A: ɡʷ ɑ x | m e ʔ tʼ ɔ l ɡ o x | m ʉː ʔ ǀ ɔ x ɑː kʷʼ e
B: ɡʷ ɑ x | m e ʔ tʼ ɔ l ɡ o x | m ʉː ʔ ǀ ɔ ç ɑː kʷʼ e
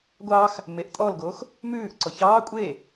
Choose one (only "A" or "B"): B